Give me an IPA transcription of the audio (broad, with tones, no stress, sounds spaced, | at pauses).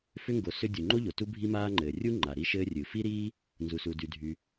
f ʏ˥ ŋ ɡ o˩ s ʏ˥ dʲ u˩ ŋ͡ǃ o˥ ʎ o˩ t u˥ bʱ i˥ m aː˥ ŋ͡ǃ ɘː˩ rʲ u˥ ŋ͡ǃ a˩ ɾ i˥ ʃ ɘː˥ rʲ ɨ˩ f i˥ ɾ iː˥ | n z u˩ s u˩ d y˩ dʱ y˩